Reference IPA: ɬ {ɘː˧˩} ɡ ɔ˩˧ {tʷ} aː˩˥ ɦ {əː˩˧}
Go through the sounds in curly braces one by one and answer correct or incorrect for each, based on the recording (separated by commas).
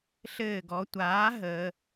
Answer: correct, correct, correct